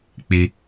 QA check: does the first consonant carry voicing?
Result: no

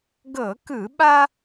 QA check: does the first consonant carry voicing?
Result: yes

